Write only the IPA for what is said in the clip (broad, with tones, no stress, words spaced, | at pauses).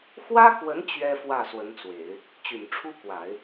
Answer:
xwä˥kwə˧˥n t͡ɕɥɛ˥fwä˥˩ swə˧˥nt͡swe˨˩˦ɪ̯ | t͡ɕy˨˩nʈ͡ʂʰu˥kwa˨˩˦ɪ̯